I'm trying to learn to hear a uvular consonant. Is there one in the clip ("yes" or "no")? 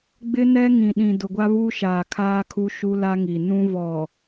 no